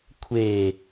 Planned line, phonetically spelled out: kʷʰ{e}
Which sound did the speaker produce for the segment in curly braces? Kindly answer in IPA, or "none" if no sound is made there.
e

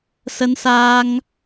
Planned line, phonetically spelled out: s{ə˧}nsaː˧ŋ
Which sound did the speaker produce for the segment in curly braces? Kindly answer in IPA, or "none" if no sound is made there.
ə˧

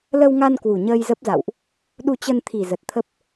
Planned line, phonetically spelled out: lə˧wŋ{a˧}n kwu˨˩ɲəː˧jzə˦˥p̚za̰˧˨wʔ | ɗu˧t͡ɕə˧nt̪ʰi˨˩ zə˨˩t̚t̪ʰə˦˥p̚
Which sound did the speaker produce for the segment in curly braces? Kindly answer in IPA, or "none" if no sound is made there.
a˧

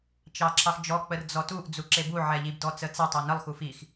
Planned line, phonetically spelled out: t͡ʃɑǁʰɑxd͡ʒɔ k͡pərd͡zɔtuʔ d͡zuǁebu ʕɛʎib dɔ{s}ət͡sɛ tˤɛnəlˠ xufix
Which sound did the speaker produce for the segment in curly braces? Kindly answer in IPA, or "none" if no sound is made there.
t͡s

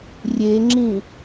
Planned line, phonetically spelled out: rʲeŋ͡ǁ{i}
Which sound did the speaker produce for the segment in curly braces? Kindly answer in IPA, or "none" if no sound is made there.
ĩ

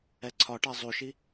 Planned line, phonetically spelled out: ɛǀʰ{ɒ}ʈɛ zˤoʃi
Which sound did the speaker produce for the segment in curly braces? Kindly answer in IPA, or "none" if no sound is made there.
ɒ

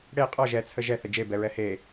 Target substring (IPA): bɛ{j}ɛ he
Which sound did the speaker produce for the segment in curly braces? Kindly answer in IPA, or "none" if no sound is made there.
ɹ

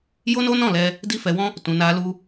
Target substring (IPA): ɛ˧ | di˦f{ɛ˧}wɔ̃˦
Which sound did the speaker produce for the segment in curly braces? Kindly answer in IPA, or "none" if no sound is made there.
ɛ˧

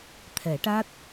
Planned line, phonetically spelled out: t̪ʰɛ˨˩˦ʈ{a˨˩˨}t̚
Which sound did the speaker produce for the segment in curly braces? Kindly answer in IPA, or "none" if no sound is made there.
a˦˥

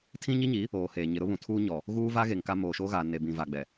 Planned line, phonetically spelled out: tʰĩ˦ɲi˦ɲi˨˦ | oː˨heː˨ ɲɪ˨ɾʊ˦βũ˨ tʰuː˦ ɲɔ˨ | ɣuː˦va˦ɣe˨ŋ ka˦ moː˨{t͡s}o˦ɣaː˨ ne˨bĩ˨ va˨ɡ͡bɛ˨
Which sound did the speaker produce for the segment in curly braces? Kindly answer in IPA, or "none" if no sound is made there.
ʃ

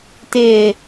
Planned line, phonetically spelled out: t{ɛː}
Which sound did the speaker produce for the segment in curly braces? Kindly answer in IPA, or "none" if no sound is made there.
ɪː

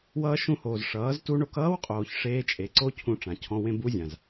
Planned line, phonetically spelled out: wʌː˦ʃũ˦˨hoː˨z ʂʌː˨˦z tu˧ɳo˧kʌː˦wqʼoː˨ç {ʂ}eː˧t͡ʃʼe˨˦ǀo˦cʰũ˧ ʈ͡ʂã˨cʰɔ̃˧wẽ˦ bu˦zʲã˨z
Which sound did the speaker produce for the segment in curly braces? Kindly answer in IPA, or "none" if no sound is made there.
ʂ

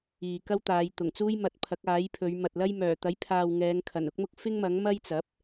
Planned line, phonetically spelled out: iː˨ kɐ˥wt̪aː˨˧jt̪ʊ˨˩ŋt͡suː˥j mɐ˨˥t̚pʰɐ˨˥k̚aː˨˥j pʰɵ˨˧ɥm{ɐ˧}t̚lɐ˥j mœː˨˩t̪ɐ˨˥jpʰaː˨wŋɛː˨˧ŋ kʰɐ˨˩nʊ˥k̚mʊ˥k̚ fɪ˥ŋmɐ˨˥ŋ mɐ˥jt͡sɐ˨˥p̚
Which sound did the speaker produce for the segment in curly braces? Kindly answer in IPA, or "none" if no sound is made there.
ɐ˨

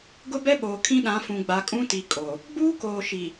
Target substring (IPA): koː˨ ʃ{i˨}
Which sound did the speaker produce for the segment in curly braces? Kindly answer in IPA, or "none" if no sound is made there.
i˨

